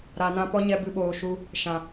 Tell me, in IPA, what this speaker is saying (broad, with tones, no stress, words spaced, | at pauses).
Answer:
ɾa˨nã˧pɔ˦ɲɛ˧ bɨ˧ɓoː˨ʃu˧ | ʃã˨